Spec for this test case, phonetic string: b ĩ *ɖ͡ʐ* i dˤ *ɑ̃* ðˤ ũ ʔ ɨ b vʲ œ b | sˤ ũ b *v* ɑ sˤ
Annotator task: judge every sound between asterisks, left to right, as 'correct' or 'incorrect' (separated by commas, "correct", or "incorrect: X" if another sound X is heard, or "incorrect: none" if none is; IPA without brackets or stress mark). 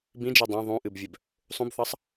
incorrect: d͡ʒ, correct, incorrect: θ